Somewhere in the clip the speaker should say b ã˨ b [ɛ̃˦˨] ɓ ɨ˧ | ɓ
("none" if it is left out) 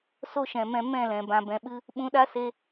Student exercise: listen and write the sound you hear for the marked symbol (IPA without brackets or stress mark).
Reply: ɛ̃˨